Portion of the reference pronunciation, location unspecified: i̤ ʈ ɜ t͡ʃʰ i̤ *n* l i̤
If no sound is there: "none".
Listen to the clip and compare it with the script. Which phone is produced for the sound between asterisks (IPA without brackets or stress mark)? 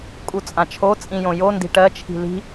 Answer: none